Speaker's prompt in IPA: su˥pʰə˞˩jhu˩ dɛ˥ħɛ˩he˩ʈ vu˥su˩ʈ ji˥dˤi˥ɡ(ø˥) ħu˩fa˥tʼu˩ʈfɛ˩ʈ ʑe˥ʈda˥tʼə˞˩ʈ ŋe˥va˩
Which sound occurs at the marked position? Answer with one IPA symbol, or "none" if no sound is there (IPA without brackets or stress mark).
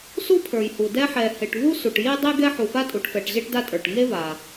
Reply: ɛ˥